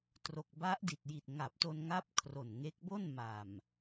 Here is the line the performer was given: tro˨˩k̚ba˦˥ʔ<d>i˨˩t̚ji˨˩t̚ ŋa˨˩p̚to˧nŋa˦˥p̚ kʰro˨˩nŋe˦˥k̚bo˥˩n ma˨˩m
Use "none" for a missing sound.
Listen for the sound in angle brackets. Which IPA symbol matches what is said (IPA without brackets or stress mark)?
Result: d